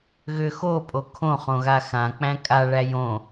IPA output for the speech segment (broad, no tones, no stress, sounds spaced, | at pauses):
ɣ ʏ x o pʼ o kʰ õ χ õ ɣ a x ã k͡p æ̃ kʼ a ɭ æ j õ